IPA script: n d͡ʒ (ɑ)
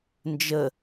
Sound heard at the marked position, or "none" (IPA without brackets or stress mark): ə